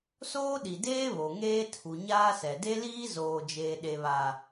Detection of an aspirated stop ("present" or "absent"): present